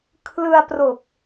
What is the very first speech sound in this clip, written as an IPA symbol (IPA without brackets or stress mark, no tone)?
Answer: kʰ